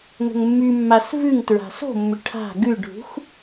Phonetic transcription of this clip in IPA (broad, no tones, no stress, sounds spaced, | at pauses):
ŋ ə̤ ŋ mː y mː a s v ʉ ŋ t ɹ a̤ s o̤ mː ʏ ʈʰ a̤ ɡ ʉ ɖʱ ṳ x